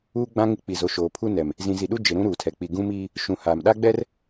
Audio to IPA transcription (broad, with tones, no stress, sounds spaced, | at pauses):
uː˦ ɡ͡b ã˦ ŋ ɪ˦ k͡p i˨ z o˨ ʃ oː˨ pʰ u˦ n ɛ˨ m | z ĩ˨ z i˨ ɗ u˦ d͡ʒ ɪ˨ ɾ ũ˦ ɾ uː˨ tʰ ɛ˨ k͡p i˨ ɡ ũ˦ m iː˦ | ʃ ũ˨ h a˨ m ɗ a˦ ɡ͡b ɛ˦ r